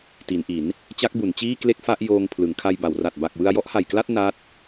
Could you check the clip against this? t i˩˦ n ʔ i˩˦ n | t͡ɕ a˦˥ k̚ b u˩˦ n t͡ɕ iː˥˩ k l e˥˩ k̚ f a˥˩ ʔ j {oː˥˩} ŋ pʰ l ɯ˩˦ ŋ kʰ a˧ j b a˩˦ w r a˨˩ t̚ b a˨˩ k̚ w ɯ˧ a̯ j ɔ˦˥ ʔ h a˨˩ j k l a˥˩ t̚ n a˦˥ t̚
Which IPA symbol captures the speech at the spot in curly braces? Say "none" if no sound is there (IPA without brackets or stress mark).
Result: oː˧